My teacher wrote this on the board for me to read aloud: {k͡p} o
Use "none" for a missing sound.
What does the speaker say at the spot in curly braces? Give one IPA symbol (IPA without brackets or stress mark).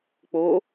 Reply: k͡p